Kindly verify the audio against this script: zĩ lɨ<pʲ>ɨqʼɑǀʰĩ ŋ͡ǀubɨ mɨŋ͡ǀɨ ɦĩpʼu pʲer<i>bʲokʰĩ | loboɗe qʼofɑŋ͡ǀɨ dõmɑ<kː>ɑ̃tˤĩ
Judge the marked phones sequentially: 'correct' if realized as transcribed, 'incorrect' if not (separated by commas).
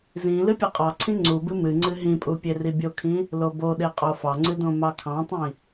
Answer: correct, correct, incorrect